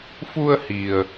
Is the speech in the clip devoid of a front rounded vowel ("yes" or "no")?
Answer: yes